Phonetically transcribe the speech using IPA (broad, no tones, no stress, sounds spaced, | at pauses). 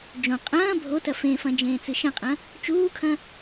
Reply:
d͡ʒ õ qʼ ɐ̃ː bʱ o t ɐ f ẽ f ɐ̃ d͡ʒ ẽː t͡s ɨ ʃ ɐ̃ qʼ ɐ̃ | t͡ʃ uː kʰ ɐ̃